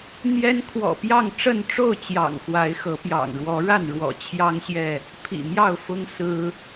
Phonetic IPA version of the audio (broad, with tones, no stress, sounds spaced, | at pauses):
n̪ j ɛ˦ n kʰ w ɔ̰˨˩ p j ɑ˥˨ ŋ ʈ͡ʂ ə˥˨ n ʈ͡ʂ o˥˨ ʊ̯ t͡ɕ j ɑ̰˨˩ ŋ x w a˨˦ ɪ̯ x ɤ˨˦ p j ɑ̰˨˩ ŋ ɻ w ɔ˨˦ ɻ a˥˨ n ɻ w ɔ̰˨˩ t͡ɕʰ j ɑ˦ ŋ ɕ j ɛ˥˨ | pʰ ḭ˨˩ m j ɑ˥˨ ʊ̯ f ʊ˦ ŋ s ɹ̩˦